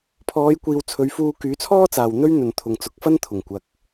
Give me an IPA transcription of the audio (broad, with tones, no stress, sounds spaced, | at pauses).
pʰ ɔː˨˧ j kʷ iː˨ w t͡sʰ ɵ˨˧ ɥ f uː˧ k yː˨˥ t͡sʰ ɔː˥ t͡s aː˨ w n̪ ɵ˥ ɥ n̪ ɵ˨ n t̪ʰ ʊ˨ ŋ t͡s ʊ˨˥ k̚ f ɐ˥ n t̪ʰ ʊ˨˩ ŋ kʷ ɐ˨ k̚